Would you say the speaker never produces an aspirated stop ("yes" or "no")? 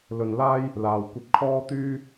no